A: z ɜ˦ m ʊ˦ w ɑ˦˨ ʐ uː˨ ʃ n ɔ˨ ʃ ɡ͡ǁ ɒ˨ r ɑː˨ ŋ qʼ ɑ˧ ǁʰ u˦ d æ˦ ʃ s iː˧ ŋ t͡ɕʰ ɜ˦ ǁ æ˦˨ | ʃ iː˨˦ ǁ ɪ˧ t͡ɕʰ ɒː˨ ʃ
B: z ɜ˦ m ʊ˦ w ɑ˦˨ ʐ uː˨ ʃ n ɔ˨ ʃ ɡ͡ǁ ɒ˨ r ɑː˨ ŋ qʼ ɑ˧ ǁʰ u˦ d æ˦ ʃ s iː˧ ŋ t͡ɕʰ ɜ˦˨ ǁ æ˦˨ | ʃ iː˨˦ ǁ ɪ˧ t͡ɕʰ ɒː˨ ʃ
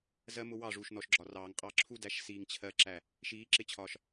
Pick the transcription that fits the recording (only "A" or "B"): B